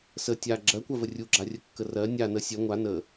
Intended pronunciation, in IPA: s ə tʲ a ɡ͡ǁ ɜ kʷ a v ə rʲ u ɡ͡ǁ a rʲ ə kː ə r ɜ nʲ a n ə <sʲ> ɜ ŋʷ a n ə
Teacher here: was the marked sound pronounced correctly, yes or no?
yes